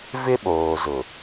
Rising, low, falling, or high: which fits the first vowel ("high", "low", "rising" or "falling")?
high